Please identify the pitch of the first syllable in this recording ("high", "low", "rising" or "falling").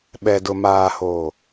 low